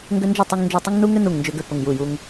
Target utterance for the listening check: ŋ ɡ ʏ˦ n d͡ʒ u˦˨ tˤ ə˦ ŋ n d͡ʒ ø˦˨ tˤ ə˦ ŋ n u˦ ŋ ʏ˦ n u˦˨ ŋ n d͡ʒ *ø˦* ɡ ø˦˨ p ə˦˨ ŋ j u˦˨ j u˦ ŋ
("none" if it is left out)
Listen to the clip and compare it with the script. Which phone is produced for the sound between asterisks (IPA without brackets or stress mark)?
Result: ø˦